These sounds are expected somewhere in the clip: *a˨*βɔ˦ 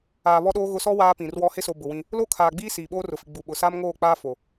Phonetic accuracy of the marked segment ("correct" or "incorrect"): incorrect